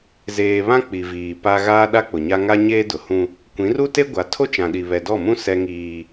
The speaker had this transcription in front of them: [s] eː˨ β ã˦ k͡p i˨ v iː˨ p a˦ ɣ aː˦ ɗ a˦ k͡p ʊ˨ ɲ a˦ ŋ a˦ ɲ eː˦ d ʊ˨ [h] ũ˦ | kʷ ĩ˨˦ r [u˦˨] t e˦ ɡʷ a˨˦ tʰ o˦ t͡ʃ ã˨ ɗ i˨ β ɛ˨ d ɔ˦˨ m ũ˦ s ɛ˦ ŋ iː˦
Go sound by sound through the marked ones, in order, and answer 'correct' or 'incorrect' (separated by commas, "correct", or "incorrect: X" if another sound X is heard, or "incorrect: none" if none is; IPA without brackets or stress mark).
incorrect: z, correct, incorrect: u˦